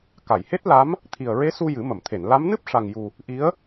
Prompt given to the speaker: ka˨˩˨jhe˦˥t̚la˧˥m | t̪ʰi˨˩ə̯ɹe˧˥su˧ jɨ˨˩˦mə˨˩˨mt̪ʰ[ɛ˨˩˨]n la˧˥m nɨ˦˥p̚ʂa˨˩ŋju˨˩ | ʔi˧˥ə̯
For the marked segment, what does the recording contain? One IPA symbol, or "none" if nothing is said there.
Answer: e˨˩˨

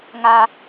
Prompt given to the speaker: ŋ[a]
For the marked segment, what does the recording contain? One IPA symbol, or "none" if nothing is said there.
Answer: a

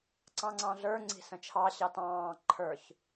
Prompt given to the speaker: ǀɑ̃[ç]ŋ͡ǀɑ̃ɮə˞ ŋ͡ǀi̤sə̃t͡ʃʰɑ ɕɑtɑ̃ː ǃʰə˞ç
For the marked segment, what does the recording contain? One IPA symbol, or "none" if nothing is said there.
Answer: none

